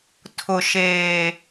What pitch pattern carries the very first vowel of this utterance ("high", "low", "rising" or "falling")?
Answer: low